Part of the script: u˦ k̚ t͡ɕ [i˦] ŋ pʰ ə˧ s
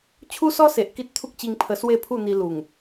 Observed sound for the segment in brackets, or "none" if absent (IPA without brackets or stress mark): i˧